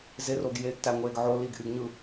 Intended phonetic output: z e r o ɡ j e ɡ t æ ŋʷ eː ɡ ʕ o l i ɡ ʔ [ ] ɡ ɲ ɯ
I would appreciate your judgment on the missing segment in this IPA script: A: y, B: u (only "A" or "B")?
A